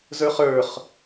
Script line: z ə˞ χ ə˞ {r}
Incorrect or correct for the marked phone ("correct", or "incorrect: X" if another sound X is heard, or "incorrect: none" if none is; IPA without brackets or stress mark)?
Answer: incorrect: χ